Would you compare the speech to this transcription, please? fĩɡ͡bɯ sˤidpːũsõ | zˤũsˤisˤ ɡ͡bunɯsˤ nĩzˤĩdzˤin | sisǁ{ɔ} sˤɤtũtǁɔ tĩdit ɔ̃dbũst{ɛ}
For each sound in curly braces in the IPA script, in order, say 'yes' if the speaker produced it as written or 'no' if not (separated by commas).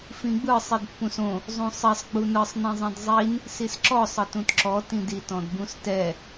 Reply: yes, yes